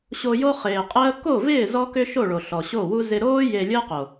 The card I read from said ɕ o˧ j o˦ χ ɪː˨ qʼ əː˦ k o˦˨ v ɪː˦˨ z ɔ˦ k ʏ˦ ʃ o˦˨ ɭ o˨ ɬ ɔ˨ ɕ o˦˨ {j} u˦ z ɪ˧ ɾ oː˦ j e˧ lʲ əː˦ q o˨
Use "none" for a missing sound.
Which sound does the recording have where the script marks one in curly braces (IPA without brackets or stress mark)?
w